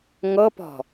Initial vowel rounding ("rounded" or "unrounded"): unrounded